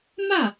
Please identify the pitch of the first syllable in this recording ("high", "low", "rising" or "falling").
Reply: falling